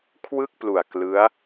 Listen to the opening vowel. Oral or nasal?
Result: oral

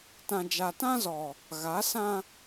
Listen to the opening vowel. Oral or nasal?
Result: nasal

